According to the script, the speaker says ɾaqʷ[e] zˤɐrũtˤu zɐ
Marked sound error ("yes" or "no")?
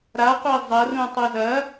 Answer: no